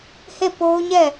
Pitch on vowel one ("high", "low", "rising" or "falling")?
falling